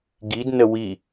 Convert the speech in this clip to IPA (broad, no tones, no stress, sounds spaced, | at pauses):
ɡ i d n ə w i